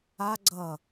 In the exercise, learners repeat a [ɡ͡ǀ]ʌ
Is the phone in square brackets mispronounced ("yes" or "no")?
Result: no